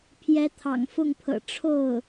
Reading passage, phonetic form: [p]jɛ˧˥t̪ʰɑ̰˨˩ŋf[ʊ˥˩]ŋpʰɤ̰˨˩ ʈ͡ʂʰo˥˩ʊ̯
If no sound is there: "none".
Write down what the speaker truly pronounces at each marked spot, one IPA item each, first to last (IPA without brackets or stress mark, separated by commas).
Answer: pʰ, ʊ˥˩